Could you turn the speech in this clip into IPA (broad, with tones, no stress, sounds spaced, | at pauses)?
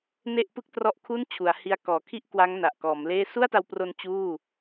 n e˥˩ ʔ p ɯ˥˩ k̚ t r ɔ˦˥ ʔ kʰ u˥˩ n t͡ɕʰ u˩˦ a̯ h i˦˥ a̯ k ɔː˩˦ kʰ i˥˩ ʔ k w a˦˥ ŋ n a˨˩ ʔ k ɔː˩˦ m l eː˥˩ s u˥˩ a̯ t a˧ w p r o˧ n t͡ɕ uː˥˩